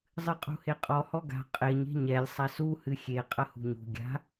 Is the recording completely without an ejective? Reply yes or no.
no